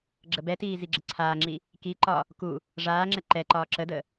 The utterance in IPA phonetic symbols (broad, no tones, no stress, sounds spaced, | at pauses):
ɡ͡ǁ ə b ɛ t iː z i ɡ͡ǁ ə ǀʰ aː ŋ͡ǁ i | k i ǃ ɒ | k u | ʐ aː ŋ͡ǁ ɛ ǃ ɛ ǃ ɒː ǁ ə d ə